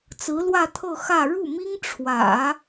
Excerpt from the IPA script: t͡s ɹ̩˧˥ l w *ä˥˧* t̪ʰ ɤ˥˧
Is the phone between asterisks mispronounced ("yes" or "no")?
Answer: no